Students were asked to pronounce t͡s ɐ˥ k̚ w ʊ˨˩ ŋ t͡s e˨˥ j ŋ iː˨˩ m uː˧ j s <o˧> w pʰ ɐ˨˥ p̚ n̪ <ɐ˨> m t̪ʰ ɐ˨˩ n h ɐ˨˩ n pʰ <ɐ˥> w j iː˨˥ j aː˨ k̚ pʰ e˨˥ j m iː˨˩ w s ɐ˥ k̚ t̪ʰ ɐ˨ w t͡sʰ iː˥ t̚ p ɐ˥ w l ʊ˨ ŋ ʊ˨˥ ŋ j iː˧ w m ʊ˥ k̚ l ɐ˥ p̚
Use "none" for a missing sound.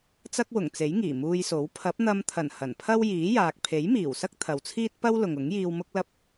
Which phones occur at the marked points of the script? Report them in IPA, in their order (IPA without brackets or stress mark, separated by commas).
o˨˥, ɐ˧, ɐ˥